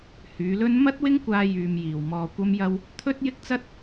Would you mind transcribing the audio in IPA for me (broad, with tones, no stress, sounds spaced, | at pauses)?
h yː˨˧ l ɵ˥ n m ɐ˥ t̚ w ɪ˥ ŋ kʷ aː˧ j yː˧ m j iː˨ w m ɔː˧ kʷ ɐ˥ m j ɐ˥ w | t̪ʰ ɵ˥ t̚ j ɪ˥ k̚ t͡s ɐ˥ t̚